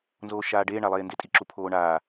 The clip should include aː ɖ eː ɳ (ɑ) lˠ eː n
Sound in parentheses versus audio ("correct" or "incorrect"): incorrect